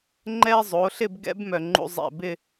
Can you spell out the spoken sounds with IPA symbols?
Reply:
ŋ͡ǃɛ˥ zˤo˩˧ɬɪ˥˧bɡɛ̰˥b mœ˧˩ŋ͡ǃṵ˥zˤɛ̰˧˩ bɪ˥˧

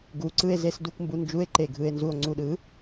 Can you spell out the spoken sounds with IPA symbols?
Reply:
ɡu˨ǀɯ˧e̯ze˧sdu˧k mbu˨nd͡ʒu˨˦e̯ ǃe˨ ɡʱɯ˨e̯nzu˨o̯ŋ͡ǀu˨ɗɯ˨˦

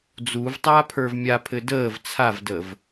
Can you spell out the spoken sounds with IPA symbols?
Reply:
d͡zuv tˤaːpʰə˞vmʲapʰɘ dəːv t͡sʰavdəv

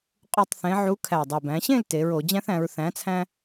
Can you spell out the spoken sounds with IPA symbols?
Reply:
qʼu˨˩tˤθẽ˩˧ ʕu˨˥kʰæ˨˩dˤi˨˩ bæ̃˩˧ɕẽ˥˨l te˩˧ɹo˧˩˧ d͡ʑæ̃˦θæ̃˩˧ɹ θæ̃˨˥t͡sʰæ̃˦

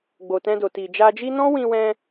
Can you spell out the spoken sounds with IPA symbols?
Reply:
ɡ͡bo˨tɛ̃˧do˨ ti˨d͡ʒa˧d͡ʒi˦ nɔ̃˦wĩ˧wɛ̃˧

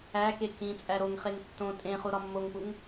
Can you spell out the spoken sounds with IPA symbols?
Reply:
æke kĩ t͡sʼæɾoŋχeŋ tːõ tʼẽχu ɾɒmːoŋpuŋ

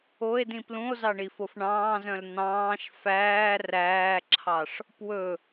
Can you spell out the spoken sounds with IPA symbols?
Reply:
oe̯dĩ plũo̯zɑɳifof ɳɑ̃ːzœ̃l n̪ɑ̃ːʃ fæː ræːǁʰɑʂ | pwɵ

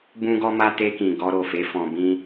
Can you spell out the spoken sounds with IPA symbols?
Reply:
bũ˦ɡɔ˦ma˦ te˧kĩ˨ ɡɔ˧ ɾo˨fe˨˦ fɔ̃˧bĩ˦

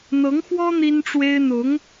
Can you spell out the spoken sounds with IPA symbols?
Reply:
n̪ɤ˧˥ŋxwɔ˥ n̪i˥nʈ͡ʂwe˥ɪ̯ n̪ʊ˧˥ŋ

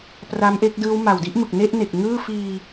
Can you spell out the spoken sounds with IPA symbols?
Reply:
pra˦˥mʔe˦˥k̚dɯː˦˥w ma˨˩wdi˥˩ʔmɯ˨˩k̚ ne˥˩ʔne˨˩k̚ ŋɯː˥˩ fiː˧

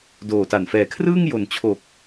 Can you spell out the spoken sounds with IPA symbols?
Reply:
doː˨˩ta˨˩n fɛː˩˦kʰrɯː˥˩ŋ jo˨˩nt͡ɕʰo˨˩k̚

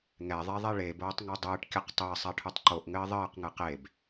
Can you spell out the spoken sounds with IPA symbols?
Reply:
ŋɛðˤeðˤe ɭeboːtˤŋo dˤɨːʈkʲɘq tˤɘːsˤaʈʰutˤ ǃoʔŋɘː ðˤɘːqŋɨ qeb

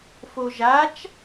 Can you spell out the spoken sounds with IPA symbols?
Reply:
foʒat͡ʃ

